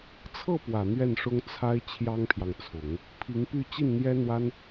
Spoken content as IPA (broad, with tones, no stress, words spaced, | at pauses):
t͡sʰɤ˥˩pwä˨˩ n̪ɥɛ˥˩nʂʊ˥ŋt͡sʰa˥ɪ̯ t͡ɕʰjɑ˥ŋpʰjɑ˨ŋt͡sʰʊ˨˩˦ŋ | pʰi˧˥ŋpy˥˧ t͡ɕi˥˩nn̪jɛ˥n̪wa˥n